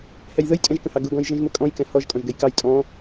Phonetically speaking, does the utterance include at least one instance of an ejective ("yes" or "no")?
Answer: yes